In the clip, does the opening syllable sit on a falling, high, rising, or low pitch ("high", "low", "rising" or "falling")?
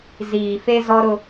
low